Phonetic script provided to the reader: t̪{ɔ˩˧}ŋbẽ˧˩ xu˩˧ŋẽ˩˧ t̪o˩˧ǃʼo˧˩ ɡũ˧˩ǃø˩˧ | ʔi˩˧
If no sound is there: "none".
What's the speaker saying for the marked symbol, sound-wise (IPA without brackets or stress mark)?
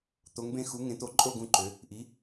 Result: o˩˧